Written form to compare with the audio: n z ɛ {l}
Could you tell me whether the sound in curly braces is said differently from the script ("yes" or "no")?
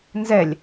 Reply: yes